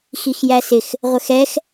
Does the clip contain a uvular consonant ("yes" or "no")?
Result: yes